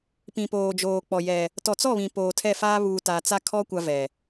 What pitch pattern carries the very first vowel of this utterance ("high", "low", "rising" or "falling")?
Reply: low